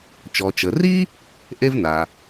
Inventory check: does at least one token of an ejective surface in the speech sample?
no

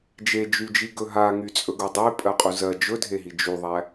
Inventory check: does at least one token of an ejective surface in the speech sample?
yes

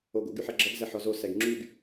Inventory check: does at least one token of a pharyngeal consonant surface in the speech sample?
yes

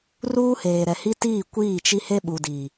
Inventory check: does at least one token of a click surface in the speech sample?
no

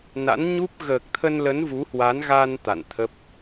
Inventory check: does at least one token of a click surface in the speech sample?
no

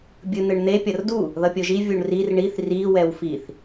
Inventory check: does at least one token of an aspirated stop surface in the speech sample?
no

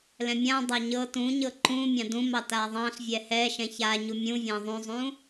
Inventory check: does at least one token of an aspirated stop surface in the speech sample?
no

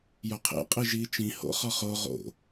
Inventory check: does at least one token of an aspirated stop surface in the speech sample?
yes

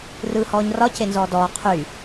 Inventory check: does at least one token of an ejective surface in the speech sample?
no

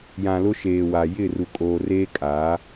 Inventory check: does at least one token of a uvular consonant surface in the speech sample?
no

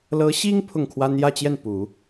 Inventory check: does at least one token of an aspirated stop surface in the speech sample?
yes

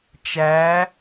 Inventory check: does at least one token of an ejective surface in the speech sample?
no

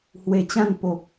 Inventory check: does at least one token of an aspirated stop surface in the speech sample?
no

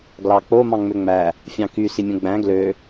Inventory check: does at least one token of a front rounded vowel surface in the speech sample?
yes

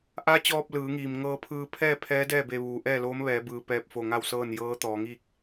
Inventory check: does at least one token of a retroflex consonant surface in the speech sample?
no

